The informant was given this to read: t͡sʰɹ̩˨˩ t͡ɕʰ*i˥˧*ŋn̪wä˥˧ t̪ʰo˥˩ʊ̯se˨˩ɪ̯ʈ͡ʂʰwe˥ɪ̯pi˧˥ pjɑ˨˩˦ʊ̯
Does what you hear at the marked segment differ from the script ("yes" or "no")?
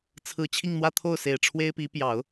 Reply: no